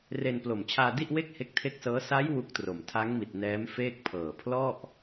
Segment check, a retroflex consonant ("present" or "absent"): absent